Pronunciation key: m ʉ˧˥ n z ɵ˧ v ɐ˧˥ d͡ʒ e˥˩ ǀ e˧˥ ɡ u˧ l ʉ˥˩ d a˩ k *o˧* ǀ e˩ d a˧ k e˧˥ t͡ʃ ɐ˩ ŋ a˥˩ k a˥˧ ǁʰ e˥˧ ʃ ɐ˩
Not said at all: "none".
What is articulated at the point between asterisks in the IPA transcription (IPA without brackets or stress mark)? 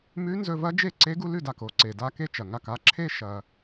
o˧